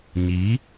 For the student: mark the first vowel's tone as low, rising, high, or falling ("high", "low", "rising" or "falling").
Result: rising